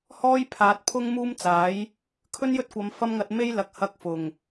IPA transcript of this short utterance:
h ɔː˥ j pʰ aː˨ t̚ pʰ ʊ˥ ŋ m uː˥ m t͡s aː˨˥ j | kʰ ɵ˥ n j ɵ˥ t̚ kʷ ɐ˨˧ m f ɐ˥ m ŋ ɐ˧ t̚ m e˥ j l ɐ˨˥ k̚ h ɐ˧ k̚ f ʊ˨˩ ŋ

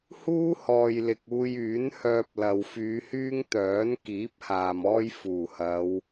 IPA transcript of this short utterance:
h uː˥ h ɔː˨ j l ɪ˨ k̚ uː˧ j yː˨˥ n h œː˧ p̚ l ɐ˨ w f yː˨˧ h yː˥ ŋ t̪ œː˨˥ n k iː˨˥ p̚ h aː˨ m ɔː˥ j f uː˨˩ h ɐ˨˧ w

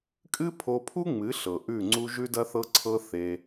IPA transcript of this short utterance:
kʼ ɨ˦ pʰ o˧ pʰ u˦ ŋ͡m ɨ˨˦ ɬ ɤ˨ ʔ ʉ˦˨ ŋ͡ǀ u˦ ʒ ʉ˦ d ɐ˦ θ ɤ˦ ǀʰ ɤ˦ θ e˦

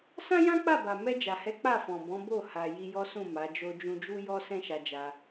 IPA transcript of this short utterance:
s ã˦ j ã˦ k͡p a˦˨ b a˨ m ɛ˧ d͡ʒ a˨ h ɛ˨˦ k͡p a˦˨ f ɔ̃˨ b ɔ̃˨˦ b o˦˨ h a˨ j i˧ j ɔ˦ s ũ˦˨ m a˨˦ d͡ʒ o˦ d͡ʒ ũ˧ d͡ʒ u˦ j ɔ˦ s ɛ̃˦ ʃ a˧ d͡ʒ a˧

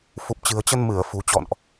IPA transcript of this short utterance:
f u˨˩ p̚ t͡ɕ ɨ̤˨˩ ə̯ t͡ɕ ə˧ n m ɨ˧˩ ə̯ f ṳ˨˩ t͡ɕ ɔ̰˧˨ n ʔ

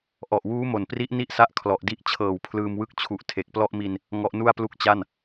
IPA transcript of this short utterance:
ʔ ɔ˨˩ ʔ w uː˦˥ m o˨˩ n p r i˦˥ ʔ n i˥˩ ʔ s a˦˥ ʔ kʰ l ɔ˨˩ ʔ d i˦˥ ʔ t͡ɕʰ ɤː˨˩ w pʰ l ɯː˧ m w ɯ˦˥ k̚ t͡ɕʰ u˨˩ ʔ tʰ e˨˩ k̚ p l ɔ˥˩ ʔ m i˧ n | ŋ ɔ˦˥ ʔ n u˥˩ a̯ p l u˥˩ k̚ t͡ɕ a˥˩ n

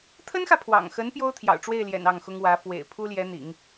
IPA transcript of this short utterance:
t̪ʰ ə˥ n x ä˨ pʰ w ɑ̰˨˩ ŋ x ə˧˥ n p j o˥ ʊ̯ t̪ʰ j ɑ̰˨˩ ʊ̯ ʈ͡ʂ w e˥˩ ɪ̯ l j ɛ̰˨˩ n ɑ˥˩ ŋ x ʊ˥ ŋ w ä˧˥ f w ḛ˨˩ ɪ̯ pʰ u˥ l j ɛ˧˥ n̪ ḭ˨˩˦ ŋ

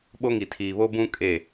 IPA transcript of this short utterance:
ɓ o˦ ŋ i˨ tʰ iː˨ β o˦ b ũ˦ kʼ e˦˨

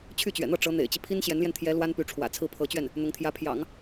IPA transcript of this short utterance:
t͡ɕʰ y˥˩ t͡ɕ ɥ ɛ̰˨˩ n̪ ɤ˥˩ ʈ͡ʂ ɤ˧˥ n̪ ḛ˨˩ ɪ̯ t͡ɕ i˦ pʰ i˥ n ɕ j ɛ˧˥ n l j ɛ˧ n t̪ʰ j ɛ˧˥ l w a˥ n p y˧˥ ʈ͡ʂʰ w ä̰˨˩ t͡sʰ ɹ̩˥˩ pʰ ɤ˧˥ t͡ɕ ɥ ɛ˥˩ n | n̪ ʊ˧˥ ŋ t̪ʰ j ä˧˥ pʰ j ɑ̰˨˩˦ ŋ

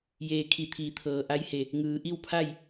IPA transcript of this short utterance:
j eː˧˩ kʰ i˧˩ t̪ʰ iː˩˧ t̪ʰ ɤː˩ ʔ a˧˥ j h e˧˩ | ŋ ɯː˩ ʔ i˥˨ w pʰ a˥˨ j

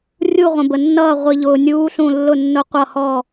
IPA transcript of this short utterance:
rʲ u˧˩ ʁʷ ə̃˩ b ə˩ nː ʌː˧˩ ʁʷ i˩ ʎ ʊː˩ nʲ uː˨˦ ɬ ũ˧˩ lː ʊ˧˩ nː ʊ˨˦ qʷ ʌ˧˩ h ɔ˧˩

